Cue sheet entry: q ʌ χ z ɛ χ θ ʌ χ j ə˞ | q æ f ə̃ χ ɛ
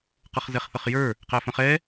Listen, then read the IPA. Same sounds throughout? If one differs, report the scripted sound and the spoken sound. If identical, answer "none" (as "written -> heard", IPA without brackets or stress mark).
none